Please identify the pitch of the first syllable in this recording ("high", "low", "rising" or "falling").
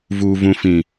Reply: low